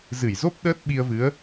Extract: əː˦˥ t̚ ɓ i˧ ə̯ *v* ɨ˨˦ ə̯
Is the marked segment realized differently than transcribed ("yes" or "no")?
no